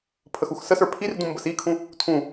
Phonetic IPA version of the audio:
pʰ ə x u x s ə s ə˞ pʰ i r d ũ m b ə s i kʰ ũ | tʰ ũ

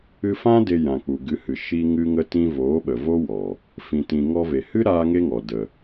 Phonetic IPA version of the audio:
ɨ˧ f ã˦ d e˧ j ã˨ k͡p u˨ ɡ ɨ˨˦ h ɨ˨ ʃ i˧ ŋ ɨ˧ ŋ ə˧ t ĩ˧ v oː˨˦ ɓ ə˨ v o˦ w ɔ˨ | f ĩ˨ t ĩ˨ ŋ ɔ˧ v e˨ h ɨ˦ ɾ aː˦ ŋ e˦ ŋ ɔ˨ d ə˨

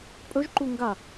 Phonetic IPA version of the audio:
pʼ ɵ ʒ ǃ u ŋ ɡ a

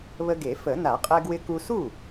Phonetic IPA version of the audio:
β ə˧ ɡ e˨˩˦ f ə˨˩˦ n a˨˩˦ qʼ ɛ˧ ɡ w ɪ˧ k u˧ s u˥˩

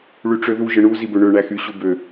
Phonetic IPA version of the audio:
ɭ y ʈ͡ʂ ø ð u ʒ ɯ ɳ u z i b ø ɳ ø ɳ æ x y ɕ u b ø

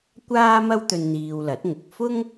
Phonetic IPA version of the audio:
kʷ aː˥ m ɐ˥ w t̪ ɵ˧ n n̪ iː˧ w l ɐ˨˥ t̚ ŋ ʊ˨ k̚ f ʊ˥ ŋ

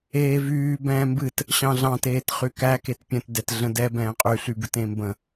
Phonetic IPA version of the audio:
eː v yː b ɛ̃ː m b ɨ t | ɕ ɑ̃ ɮ ɑ̃ t eː t χ y k æ k e t pʲ ə̃ t d ɛ t ɮ ə̃ d ɛ b ɛ̃ː qʼ y ɬ y b ɨ t ẽ m b ə̃

